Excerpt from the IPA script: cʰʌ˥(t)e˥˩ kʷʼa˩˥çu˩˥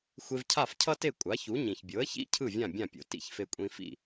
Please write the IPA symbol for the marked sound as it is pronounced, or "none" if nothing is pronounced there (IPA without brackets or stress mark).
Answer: t